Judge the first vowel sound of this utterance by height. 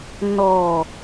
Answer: mid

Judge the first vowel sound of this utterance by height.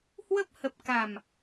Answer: mid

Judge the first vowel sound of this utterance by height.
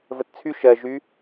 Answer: mid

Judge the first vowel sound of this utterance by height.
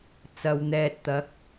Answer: low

